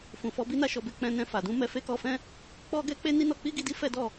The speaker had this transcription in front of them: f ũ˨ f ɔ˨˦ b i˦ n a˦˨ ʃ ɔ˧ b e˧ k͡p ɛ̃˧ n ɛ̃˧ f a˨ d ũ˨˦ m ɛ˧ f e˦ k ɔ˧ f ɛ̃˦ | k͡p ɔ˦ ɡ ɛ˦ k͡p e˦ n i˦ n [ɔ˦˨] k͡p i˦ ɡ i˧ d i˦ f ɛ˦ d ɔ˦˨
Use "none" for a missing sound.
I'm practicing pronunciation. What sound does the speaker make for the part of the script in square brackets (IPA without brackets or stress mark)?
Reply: ɔ˧